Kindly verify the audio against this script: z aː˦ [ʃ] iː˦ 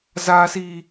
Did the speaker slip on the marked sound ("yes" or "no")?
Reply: yes